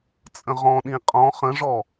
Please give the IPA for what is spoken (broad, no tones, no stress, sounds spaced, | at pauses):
t͡sʼ ə̃ ʁ ɔ̃ ɗ ĩ qʼ ɔ̃ χ ə̃ ʐ ɔ